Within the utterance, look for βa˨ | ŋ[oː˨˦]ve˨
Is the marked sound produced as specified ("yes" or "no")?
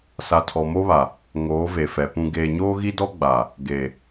yes